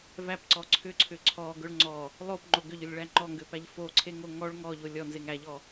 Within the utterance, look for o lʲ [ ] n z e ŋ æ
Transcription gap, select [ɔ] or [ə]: ɔ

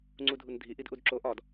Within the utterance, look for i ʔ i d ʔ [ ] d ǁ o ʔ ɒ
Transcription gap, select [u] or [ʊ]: u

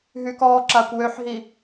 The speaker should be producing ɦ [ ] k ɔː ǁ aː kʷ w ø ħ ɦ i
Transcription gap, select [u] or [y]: y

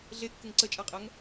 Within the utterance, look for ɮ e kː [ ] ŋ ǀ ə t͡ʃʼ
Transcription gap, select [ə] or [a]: ə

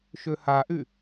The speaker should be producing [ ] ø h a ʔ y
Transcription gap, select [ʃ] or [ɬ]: ʃ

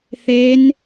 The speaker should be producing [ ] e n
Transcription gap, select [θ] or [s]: θ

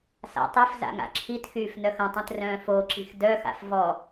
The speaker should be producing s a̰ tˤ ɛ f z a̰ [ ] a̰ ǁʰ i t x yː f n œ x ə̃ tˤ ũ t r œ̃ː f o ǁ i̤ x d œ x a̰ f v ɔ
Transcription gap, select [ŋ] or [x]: ŋ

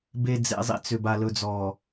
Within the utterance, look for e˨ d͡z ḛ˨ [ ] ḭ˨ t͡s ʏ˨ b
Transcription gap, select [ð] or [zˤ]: zˤ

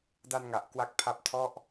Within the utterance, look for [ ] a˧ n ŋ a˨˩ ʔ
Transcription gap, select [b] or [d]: d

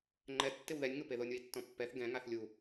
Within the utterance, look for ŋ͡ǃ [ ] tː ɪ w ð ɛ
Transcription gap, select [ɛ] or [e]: ɛ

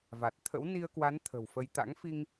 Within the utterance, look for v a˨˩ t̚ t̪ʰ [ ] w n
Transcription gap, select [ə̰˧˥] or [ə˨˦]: ə̰˧˥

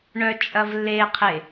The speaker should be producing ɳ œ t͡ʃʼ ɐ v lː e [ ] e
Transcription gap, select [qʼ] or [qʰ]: qʰ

